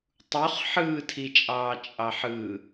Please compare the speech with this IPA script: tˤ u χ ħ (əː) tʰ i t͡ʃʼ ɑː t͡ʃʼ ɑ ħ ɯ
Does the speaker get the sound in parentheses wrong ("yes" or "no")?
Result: yes